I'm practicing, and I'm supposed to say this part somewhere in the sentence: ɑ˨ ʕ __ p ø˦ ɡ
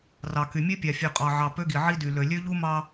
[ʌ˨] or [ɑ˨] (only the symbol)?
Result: ɑ˨